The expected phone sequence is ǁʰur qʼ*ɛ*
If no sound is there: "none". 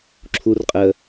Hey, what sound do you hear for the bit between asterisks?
ə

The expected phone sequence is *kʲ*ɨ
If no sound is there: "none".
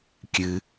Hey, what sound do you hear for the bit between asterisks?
kʲ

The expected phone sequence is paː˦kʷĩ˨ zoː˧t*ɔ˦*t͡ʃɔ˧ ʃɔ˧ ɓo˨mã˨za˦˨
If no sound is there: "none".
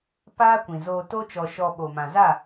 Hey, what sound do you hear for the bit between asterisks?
o˦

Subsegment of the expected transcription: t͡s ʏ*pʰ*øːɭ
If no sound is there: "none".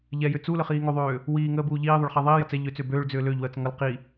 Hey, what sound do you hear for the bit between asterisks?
b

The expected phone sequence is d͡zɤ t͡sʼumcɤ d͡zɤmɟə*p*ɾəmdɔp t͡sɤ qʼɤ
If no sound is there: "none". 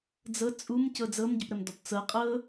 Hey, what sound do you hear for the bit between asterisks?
p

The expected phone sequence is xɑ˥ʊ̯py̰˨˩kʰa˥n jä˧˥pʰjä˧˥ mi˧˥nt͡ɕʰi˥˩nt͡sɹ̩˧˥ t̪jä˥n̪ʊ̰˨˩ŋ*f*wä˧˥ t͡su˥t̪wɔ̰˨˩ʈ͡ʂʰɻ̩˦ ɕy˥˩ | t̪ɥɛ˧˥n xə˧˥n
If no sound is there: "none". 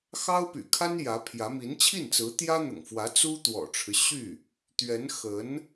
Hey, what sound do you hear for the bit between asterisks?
f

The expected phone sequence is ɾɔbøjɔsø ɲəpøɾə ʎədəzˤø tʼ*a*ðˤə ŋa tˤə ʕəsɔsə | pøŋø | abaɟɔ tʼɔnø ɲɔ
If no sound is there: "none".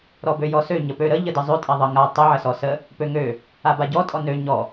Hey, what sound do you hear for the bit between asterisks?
a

